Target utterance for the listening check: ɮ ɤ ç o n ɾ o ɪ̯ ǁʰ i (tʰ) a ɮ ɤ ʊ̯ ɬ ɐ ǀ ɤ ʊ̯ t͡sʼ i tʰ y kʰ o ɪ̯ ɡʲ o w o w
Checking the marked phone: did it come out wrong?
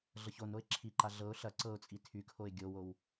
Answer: yes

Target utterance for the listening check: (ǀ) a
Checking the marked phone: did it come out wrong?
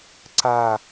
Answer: no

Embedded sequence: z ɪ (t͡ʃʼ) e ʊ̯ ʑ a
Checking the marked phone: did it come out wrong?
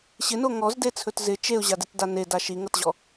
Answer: yes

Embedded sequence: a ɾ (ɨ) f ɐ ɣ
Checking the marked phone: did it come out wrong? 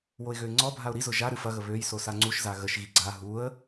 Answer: no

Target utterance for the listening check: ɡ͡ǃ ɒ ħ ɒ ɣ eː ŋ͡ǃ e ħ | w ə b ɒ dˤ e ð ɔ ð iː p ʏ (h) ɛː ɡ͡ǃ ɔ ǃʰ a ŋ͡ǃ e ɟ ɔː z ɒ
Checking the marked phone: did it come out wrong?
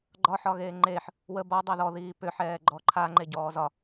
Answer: yes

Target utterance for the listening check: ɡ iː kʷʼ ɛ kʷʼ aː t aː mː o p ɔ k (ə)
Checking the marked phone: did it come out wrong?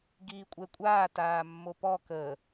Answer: no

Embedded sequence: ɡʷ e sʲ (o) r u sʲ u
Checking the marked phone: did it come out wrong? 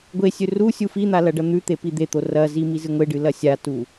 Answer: yes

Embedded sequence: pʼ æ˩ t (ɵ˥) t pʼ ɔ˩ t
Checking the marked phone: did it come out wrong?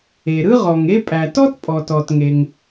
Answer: yes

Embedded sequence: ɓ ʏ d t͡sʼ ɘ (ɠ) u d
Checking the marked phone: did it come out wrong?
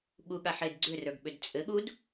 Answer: no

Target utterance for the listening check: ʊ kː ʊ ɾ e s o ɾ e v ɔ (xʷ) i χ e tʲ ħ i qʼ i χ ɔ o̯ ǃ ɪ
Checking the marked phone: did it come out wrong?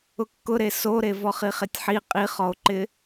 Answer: yes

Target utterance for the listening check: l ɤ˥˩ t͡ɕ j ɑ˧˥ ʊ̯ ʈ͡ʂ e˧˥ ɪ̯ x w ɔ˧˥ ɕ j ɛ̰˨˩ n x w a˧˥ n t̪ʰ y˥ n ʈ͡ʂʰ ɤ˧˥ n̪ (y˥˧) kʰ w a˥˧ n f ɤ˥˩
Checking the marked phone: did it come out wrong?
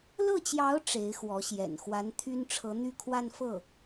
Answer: no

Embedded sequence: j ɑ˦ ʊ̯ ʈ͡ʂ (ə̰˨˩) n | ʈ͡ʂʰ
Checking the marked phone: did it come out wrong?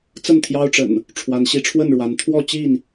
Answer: no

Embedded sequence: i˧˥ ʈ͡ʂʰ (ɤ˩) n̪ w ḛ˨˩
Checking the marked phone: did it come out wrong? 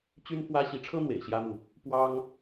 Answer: yes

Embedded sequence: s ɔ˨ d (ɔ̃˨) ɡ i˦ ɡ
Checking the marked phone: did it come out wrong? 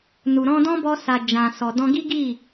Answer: yes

